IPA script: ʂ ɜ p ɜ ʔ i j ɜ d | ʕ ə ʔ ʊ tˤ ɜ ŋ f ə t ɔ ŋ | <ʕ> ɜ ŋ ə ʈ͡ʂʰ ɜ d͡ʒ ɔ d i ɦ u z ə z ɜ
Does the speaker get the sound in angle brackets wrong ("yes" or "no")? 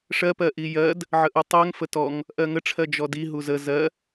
yes